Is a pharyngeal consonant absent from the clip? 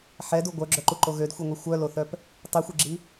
no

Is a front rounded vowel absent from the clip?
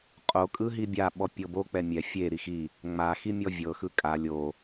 yes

